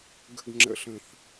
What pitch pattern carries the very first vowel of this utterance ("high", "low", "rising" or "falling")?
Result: low